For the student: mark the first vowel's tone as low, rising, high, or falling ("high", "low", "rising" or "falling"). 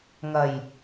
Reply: low